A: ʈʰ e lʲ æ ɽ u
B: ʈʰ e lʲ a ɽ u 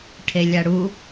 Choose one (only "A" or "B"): B